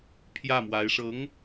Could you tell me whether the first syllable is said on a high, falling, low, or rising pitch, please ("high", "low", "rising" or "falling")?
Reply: falling